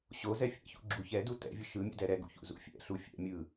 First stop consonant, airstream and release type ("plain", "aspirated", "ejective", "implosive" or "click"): click